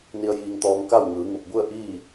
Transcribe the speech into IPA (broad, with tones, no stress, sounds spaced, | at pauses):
n i˧ ə̯ j iː˧ ŋ t̪ ɔː˧ ŋ k a˥˨ w ŋ ɯː˩˧ ŋ u˧˩ p̚ b u˥˨ ə̯ ʔ iː˥˨